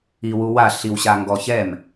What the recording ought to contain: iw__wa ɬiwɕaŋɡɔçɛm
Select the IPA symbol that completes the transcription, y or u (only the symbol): u